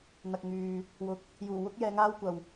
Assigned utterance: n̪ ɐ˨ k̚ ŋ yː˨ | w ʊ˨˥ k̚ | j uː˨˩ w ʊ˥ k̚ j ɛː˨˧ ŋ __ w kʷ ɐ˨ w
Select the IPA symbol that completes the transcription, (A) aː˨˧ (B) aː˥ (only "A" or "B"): B